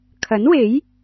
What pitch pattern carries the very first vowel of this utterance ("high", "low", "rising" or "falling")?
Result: rising